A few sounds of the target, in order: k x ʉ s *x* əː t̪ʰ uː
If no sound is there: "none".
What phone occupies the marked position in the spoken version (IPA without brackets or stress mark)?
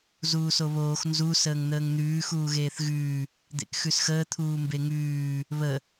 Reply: x